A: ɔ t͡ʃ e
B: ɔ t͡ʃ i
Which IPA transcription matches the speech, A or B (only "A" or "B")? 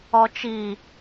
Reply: B